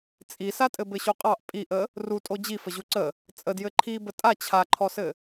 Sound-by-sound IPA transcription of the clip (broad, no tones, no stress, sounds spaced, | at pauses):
t͡sʼ i s a tʼ ɘ b ɘ ɕ u qʼ ɑ ʔ pʼ i ʔ ə | r u tʼ o d͡ʑ i f ə ʑ u ǀ ə | t͡sʼ ə d j ɘ ǃʰ i b ə tʼ a t͡ɕʰ a ǃʰ ɔ s ɘ